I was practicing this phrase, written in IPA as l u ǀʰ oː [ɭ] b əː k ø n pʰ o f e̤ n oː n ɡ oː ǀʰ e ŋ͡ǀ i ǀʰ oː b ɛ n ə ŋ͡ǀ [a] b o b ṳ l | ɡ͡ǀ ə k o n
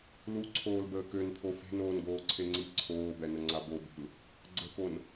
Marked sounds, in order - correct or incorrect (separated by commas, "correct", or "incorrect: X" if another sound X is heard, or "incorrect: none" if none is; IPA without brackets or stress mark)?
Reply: incorrect: l, correct